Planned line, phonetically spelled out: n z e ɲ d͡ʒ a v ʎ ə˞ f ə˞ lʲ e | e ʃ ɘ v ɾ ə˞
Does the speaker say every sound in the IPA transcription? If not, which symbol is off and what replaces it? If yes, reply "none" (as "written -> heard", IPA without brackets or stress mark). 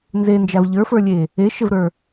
ɲ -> n